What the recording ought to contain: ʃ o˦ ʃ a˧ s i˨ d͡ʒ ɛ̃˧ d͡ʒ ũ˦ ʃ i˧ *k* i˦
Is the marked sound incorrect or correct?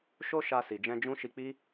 incorrect